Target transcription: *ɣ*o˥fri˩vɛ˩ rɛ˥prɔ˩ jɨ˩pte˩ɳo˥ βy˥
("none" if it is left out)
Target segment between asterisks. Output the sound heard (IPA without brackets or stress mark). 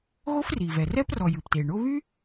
ɣ